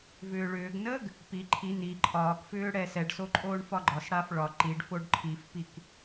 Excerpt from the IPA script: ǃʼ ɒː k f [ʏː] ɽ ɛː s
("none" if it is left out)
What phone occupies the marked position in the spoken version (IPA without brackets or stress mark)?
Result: ʏː